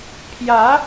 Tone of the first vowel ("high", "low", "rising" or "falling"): rising